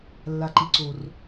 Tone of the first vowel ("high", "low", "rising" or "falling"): low